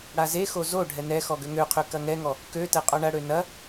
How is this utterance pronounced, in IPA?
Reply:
ɽ a z e x o z o ɖʱ ɛ n ɛ x ɔ ɡ ø ŋ ø qʰ ø k ɐ ŋ ɛ ŋ ɔ | k ø t ɛ qʼ ɔ ɳ ɐ ɽ ø n ɐ

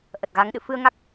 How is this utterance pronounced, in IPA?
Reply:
ʔ ə˨˩ t̚ ɣ a˨˦ ŋ ɗ ɨ̰˧˨ f ɨ˧ ə̯ ŋ a˦˥ k̚

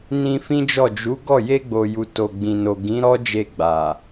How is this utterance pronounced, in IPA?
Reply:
n ĩ˧ f ĩ˦ d͡ʒ ɔ˦˨ d͡ʒ u˨˦ ɡ ɔ˦˨ j e˧ ɡ͡b o˨ j u˨ t o˨ ɡ͡b ĩ˨ n o˨ ɡ ĩ˨˦ ɾ ɔ˦ d͡ʒ e˧ ɡ͡b a˨

